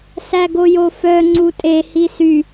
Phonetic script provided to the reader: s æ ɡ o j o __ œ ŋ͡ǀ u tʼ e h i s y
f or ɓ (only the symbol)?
f